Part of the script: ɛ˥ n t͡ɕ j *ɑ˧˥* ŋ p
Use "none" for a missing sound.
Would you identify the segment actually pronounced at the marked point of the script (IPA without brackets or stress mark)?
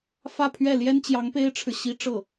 ɑ˧˥